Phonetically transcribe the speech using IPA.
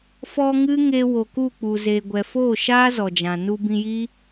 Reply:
f ɔ˧ ŋ ɨ˦ ŋ e˧ w o˨ k u˦˨ k͡p u˨ z e˨ ɡʷ ɛ˨ f oː˦˨ ʃ aː˦ z ɔ˨ d͡ʒ ã˨ n u˧ b ĩ˧ j i˦

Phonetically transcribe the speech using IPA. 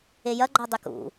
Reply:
e j ɐ ɡ͡ǃ ɔ dˤ e k ṵ

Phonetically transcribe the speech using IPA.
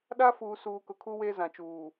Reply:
ɗ a˦ f uː˨ s uː˨ k ʊ˨ kʰ uː˦ w eː˦ z ã˨ t͡ʃ uː˨

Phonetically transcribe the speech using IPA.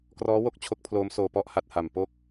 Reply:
k r ɔː˦˥ w o˦˥ k̚ t͡ɕʰ o˦˥ k̚ pʰ l oː˦˥ m s oː˧ p ɔ˥˩ ʔ h a˥˩ t̚ h a˨˩ m p o˥˩ k̚

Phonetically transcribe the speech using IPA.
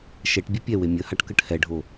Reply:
ʃ ɛ ʈ bʲ e pʲ ɛ w e mʲ ə h a ʈ k ə ʈ h ɛ ɖʱ o

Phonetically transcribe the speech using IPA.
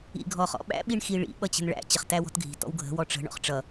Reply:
ḭ ɡʱ ɔ χ ɔ̰ ɓ æ̰ ɓ i ɳ x i ɭ ḭ ɓ ʌ t͡ɕ ə̤ n ɭ æ̰ t͡ɕ ə χ t æ w ɔ̤ t ɡʱ i̤ t ɔ̰ w ɡʱ ə̤ w ɔ ʈ͡ʂ ə̤ ɳ ɔ̰ χ ʈ͡ʂ ʌ

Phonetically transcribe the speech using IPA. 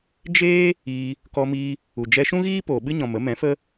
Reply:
d͡ʒ eː˦ | iː˧ | k ɔ˧ m iː˧ | u˨ d͡ʒ ɛ˧ ʃ ũ˦ ɣ iː˦ p oː˨ ɓ ɨ˦ ɲ ɔ̃˨ m ə˨˦ m ɛ̃˨˦ f ə˦

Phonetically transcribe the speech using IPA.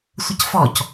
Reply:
sʷ ə c f ɔ c

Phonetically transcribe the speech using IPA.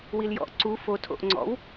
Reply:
w i l j ɔ̰ ʔ ǀ u f o tʰ o̰ ʔ ŋ͡ǀ ɔ̰ w

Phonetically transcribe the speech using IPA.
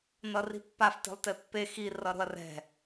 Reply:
n ʌ r i̤ pː a f t e̤ lˠ t e pː e x i r ʌ ɾ o̤ ɐ̯ r ɛ̤

